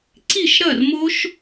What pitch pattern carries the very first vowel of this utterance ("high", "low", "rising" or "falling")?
falling